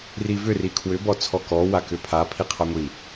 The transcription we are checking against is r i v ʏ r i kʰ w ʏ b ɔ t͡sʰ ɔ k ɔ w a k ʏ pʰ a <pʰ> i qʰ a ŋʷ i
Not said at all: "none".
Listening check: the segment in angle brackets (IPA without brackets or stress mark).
pʰ